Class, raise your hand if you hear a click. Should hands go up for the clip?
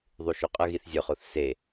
no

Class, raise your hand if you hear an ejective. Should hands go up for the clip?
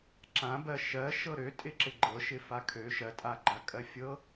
yes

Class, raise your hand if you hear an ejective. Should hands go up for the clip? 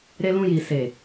no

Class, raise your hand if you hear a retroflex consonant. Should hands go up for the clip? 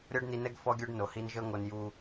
yes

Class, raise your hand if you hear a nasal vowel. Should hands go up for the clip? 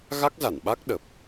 no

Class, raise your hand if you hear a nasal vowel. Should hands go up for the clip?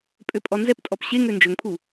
no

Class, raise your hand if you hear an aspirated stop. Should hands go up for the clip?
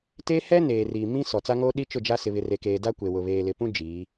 no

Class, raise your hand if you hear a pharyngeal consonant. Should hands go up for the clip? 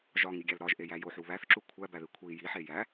yes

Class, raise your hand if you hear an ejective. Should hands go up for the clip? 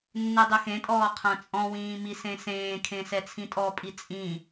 yes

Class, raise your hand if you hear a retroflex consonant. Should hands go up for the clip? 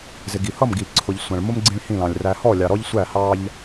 yes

